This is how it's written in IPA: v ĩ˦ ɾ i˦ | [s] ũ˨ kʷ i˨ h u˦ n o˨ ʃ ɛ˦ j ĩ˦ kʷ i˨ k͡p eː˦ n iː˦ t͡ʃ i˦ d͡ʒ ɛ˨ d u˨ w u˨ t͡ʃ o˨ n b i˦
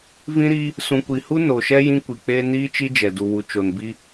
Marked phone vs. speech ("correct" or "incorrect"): correct